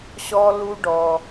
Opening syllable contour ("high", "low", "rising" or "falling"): high